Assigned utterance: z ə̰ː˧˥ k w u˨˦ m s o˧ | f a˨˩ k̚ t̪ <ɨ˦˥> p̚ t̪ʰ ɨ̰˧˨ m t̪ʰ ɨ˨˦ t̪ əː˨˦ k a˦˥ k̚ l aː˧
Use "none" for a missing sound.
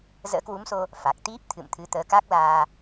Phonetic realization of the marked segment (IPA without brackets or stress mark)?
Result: i˦˥